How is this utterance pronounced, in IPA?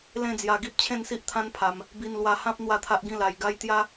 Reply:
l ẽ˥˧ d͡z j a˧ ɡ i˦ p̚ t͡ɕʰ ẽ˥˧ n s i˦ ʔ t̪ʰ ã˦ n pʰ a˧ m | b i˧ n l w a˧ h ã˦ p̚ n̪ w a˥˧ t̪ʰ a˦ ʔ ɡ ĩ˥˧ l a˧ j ɡ a˦ j t̪ j a˦

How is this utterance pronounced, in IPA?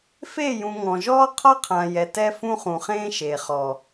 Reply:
f e˦˨ j ũ˨ ŋ ɔ̃˨ ʒ ɔː˦ qʰ ɒ˦ qʰ ã˨ j ɛ˨ t ɛ˦ f ũ˦ χ ũ˨ χ ẽː˦ ʃ eː˨ χ ɔː˨

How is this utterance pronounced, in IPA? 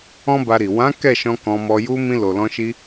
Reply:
ɔ̃˦ b a˧ ɾ i˨ w ã˨˦ k ɛ˦˨ ʃ ɔ̃˧ k ɔ̃˧ m ɔ˧ j u˧ m ĩ˧ l o˨ l ɔ̃˧ ʃ i˧

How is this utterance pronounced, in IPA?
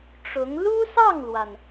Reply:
ʈ͡ʂ ʊ˧˥ ŋ l u˥ s ɑ˥˩ ŋ l w a˩ n

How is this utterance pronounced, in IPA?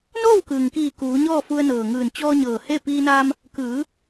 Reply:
n oː˥˨ w k ɯː˩ ŋ k iː˧˩ k uː˩˧ ɲ ɔː˥˨ f u˧ ə̯ n ɤː˩ ŋ ɯː˧˩ n t͡ɕ ɔː˧ ɲ ɤː˩ h e˥˨ p iː˧ n a˧ m | k ɯː˩˧

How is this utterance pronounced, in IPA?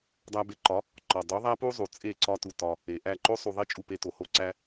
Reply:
dˤ æ˧ b e˧ ǃ ɒ˨˦ | ǃ ɒ˨ dˤ u˨˦ ðˤ æ˦ p u˦ zˤ u˨ t͡sʼ e˦˨ ǀ ɒ˦ t u˧ t ɒ˧ | e˨ ʔ æ˦˨ ǃ o˦ sˤ u˧ ðˤ i˦ t͡ʃʼ u˧ p e˧ t o˨ h o˦ ǀ æ˦

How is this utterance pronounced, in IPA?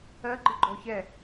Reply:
ɜ ɡ͡ǃ ɨ ɡ͡ǃ ɔ ç ɛ

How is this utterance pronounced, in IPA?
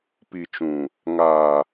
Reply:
p i˨ t͡ʃ ũ˨ | ŋ aː˨

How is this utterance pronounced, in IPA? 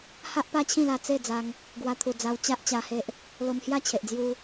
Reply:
h a˦ ʔ p a˦ t͡ɕʰ ĩ˥˧ l a˧ t͡s e˥˧ d͡z a˧ ŋ | ɡ w a˧ t̪ʰ u˨˩ d͡z a˧ w t͡ɕ a˦ ʔ t͡ɕ a˧ h e˦ ʔ | l o˧ m h j a˥˧ t͡ɕʰ e˨ ʔ d͡z j u˧

